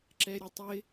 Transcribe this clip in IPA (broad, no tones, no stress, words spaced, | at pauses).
ǁɛɾʲʌtˤɪ